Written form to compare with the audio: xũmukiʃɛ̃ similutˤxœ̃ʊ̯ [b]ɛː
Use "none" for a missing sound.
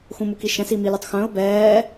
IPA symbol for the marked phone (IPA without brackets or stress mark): b